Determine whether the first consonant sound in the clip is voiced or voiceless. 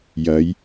voiced